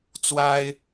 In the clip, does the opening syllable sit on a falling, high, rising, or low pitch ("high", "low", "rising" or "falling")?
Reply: high